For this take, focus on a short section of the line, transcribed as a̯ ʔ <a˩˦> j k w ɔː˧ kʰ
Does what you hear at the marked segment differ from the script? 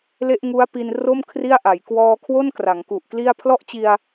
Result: no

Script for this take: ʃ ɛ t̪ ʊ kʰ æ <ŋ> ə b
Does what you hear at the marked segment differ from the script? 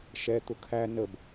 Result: yes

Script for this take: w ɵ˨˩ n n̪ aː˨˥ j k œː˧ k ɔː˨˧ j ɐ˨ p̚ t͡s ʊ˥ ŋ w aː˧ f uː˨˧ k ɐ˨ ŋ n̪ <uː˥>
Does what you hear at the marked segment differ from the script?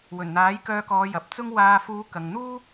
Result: no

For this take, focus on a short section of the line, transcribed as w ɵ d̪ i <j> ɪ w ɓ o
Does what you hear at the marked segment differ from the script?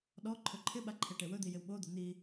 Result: no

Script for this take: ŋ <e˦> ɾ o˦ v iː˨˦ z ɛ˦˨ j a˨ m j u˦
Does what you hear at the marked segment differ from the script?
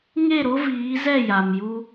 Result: yes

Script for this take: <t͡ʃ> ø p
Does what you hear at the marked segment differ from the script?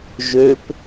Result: yes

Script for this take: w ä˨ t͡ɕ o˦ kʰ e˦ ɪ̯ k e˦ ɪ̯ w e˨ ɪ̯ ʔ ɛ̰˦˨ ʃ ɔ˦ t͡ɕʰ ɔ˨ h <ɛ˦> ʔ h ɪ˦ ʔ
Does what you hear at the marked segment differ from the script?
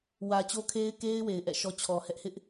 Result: no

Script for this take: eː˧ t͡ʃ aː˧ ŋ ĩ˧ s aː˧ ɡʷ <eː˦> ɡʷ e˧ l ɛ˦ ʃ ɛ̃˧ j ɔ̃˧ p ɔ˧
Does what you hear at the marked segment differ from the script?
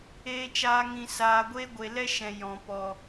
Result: yes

